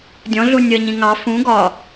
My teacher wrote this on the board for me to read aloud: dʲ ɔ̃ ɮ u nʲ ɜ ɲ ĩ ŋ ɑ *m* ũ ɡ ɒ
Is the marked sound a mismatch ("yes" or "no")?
yes